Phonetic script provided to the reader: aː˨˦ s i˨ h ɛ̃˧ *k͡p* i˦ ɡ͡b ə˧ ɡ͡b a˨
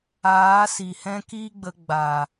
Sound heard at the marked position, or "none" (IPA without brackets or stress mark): k